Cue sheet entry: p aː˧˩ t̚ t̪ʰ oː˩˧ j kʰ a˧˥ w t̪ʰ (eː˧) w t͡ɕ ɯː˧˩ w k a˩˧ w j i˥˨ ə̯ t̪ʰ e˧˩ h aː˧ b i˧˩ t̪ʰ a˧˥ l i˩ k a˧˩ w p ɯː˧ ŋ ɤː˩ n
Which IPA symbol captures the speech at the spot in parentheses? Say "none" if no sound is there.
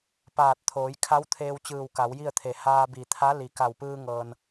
eː˧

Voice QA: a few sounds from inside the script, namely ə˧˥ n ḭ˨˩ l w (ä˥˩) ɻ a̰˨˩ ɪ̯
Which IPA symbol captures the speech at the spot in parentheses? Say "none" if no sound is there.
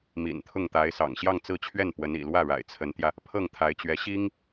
ä˥˩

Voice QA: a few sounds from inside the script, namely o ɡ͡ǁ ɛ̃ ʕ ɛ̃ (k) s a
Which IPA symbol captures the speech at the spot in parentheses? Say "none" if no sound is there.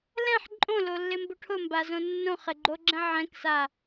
k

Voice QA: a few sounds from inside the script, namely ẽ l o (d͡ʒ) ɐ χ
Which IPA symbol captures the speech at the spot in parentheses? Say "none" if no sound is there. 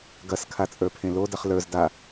d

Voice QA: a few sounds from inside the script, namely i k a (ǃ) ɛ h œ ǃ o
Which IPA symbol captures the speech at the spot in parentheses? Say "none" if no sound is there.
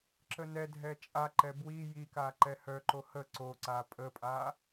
ǃ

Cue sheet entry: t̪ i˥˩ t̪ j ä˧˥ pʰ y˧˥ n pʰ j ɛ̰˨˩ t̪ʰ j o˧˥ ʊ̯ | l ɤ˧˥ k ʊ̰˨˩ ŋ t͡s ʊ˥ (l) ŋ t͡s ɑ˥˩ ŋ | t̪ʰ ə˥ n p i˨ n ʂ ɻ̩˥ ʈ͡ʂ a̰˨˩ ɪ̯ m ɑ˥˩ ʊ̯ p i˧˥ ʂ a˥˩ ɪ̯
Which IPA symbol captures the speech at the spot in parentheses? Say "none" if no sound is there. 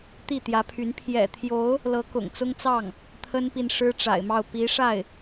none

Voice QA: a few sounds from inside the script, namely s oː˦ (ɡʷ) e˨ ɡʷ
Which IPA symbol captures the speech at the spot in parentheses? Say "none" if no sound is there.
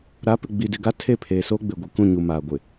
ɡ͡b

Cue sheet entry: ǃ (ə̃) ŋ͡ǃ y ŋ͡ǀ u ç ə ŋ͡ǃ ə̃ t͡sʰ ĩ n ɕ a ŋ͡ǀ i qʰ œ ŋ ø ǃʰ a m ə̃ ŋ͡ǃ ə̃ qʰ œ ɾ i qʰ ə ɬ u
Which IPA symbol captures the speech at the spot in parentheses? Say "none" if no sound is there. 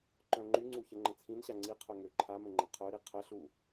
œ̃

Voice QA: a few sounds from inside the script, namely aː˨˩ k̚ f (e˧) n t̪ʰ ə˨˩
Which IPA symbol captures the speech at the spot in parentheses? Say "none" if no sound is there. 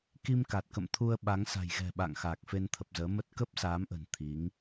e˧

